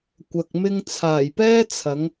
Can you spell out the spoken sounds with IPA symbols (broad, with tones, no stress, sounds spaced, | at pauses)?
kʷ ɐ˨ k̚ m ɪ˧ ŋ t͡sʰ aː˨˩ j p ɛː˥ t͡sʰ ɐ˨˥ ŋ